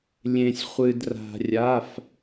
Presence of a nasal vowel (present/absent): present